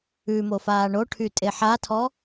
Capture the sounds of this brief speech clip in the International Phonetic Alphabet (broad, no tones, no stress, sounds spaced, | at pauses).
ʉ m o f aː ɳ o ʈʰ y tʼ e ħ a tʰ ɔ